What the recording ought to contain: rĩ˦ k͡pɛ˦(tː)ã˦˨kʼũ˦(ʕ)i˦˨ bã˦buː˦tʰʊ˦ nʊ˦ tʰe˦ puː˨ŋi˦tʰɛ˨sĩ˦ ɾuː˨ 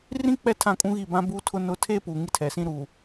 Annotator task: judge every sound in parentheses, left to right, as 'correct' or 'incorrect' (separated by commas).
incorrect, incorrect